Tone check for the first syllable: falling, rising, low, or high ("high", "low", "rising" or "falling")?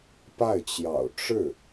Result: falling